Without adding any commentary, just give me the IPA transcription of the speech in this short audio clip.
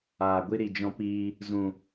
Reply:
aː˨ ɡʷ i˧ ɾ i˧ d͡ʒ ɔ̃˦ p iː˦ | z ũ˧

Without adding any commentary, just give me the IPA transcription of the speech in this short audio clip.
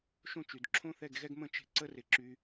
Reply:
ʃ õ˦ t͡ʃ y˨ d ǁʰ õ˦ θ ɛ˦˨ ɡ ɣ ɛ˦ ɡ m ə̃˦ t͡ʃ e̤˦ ǀ ə˦ r ɪ˦ ǁ y˦

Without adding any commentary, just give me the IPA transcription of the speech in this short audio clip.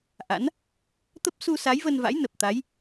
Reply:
ʔ a̰˧˥ n | t̪ ə˦˥ p̚ s u˧ s a˨˦ j v ə˧ n v a̰˧˥ j n ə˨˩ p̚ t̪ a˨˦ j

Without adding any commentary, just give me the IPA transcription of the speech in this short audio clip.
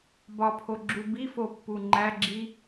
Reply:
b ɒ pʰ o ɡ͡ǁ u b i f o pː u ŋ͡ǃ æ ɡ͡ǁ i

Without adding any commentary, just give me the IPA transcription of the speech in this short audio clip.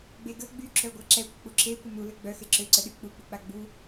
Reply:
ɡ͡b e ɡ ə ɡ͡b y ǁ œ ɡʷ a ǁ ɛ kʷ ə k͡p u ǁ e kʷ ə m u l ə ɡ͡b œ x e ǁ ø ǀ ə ɗ y k͡p u k͡p u k͡p a ɡ͡b u

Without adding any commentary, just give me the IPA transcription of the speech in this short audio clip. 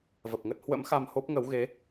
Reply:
v ə˨˩ p̚ ŋ ə˦˥ t̚ h w ə̰˧˥ m x a˧ m h o˦˥ p̚ ŋ ə˨˦ w ɣ e˨˦

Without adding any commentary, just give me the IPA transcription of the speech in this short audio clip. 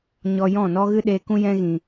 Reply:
ɲ ɔ˧ j ɔ̃˦˨ n ɔ˦ ɣ ɨ˦ ɗ eː˧ k ũ˦ j ɛ̃˦ ɣ ĩ˨

